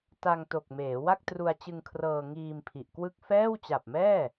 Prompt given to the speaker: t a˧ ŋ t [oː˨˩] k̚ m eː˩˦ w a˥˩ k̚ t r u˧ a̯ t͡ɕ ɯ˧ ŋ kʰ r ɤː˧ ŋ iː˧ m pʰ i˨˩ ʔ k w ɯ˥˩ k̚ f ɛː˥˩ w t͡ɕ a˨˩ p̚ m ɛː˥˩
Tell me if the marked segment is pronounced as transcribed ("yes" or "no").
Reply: no